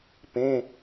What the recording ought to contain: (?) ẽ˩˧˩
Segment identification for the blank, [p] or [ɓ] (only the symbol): p